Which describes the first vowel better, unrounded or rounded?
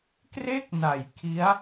unrounded